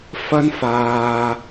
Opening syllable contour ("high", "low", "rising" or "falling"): high